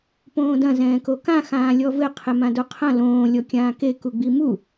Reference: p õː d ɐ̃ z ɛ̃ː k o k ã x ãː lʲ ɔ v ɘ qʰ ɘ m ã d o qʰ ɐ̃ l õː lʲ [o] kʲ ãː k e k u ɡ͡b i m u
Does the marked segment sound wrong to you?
yes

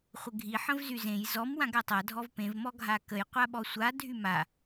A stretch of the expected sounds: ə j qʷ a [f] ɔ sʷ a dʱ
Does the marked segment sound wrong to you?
yes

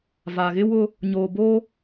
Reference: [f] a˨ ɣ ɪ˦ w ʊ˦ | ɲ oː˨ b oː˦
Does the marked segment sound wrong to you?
yes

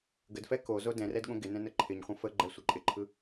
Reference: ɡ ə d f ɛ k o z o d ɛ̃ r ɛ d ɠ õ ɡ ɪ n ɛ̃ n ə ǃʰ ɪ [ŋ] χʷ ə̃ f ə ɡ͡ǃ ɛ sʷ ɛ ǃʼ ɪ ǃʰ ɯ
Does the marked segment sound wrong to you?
yes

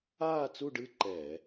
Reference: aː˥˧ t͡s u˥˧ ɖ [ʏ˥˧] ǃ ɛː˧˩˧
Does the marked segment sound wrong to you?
yes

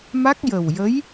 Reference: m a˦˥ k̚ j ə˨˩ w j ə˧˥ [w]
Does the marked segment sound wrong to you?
yes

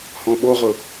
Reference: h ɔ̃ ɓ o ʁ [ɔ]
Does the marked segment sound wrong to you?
yes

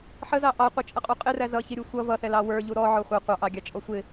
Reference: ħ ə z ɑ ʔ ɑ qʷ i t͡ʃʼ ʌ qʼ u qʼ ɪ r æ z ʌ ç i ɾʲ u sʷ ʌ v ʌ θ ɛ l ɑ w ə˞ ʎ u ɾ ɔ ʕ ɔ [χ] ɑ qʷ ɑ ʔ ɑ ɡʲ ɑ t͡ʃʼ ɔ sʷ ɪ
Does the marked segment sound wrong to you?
yes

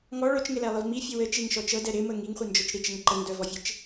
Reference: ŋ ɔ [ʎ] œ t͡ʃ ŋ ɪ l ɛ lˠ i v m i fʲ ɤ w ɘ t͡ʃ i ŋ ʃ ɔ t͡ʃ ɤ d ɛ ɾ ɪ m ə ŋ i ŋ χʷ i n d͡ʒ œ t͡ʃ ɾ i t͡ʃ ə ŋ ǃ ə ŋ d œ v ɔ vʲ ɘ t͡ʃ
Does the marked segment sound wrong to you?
yes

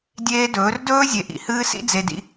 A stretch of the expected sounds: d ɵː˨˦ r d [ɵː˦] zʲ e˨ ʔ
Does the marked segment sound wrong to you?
no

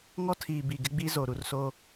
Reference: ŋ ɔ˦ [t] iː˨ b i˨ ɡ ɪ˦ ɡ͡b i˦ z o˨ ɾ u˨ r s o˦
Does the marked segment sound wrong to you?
yes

